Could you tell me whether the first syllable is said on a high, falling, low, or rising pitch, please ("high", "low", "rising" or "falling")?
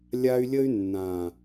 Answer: high